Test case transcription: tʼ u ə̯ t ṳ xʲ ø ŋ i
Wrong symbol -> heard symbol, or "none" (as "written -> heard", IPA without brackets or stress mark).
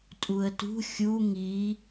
ø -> u